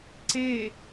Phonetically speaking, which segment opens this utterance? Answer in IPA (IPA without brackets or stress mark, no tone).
ǀ